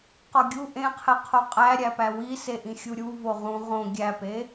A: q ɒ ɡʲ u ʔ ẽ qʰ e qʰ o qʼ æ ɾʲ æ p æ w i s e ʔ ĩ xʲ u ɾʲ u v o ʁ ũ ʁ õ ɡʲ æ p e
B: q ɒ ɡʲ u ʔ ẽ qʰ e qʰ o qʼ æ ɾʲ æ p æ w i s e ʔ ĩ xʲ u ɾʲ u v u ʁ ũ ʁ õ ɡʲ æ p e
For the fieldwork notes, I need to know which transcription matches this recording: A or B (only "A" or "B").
A